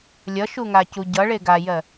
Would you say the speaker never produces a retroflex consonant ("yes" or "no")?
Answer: no